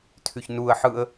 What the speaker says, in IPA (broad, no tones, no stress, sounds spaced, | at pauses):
tʰ y ç n u ə̯ ħ ɯ ə̯